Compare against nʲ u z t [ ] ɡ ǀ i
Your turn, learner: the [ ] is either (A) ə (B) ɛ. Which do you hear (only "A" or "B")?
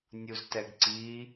B